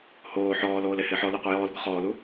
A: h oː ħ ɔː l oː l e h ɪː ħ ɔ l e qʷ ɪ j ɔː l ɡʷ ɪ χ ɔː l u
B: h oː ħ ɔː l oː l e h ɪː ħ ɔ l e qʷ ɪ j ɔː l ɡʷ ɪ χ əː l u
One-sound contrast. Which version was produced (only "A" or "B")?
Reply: A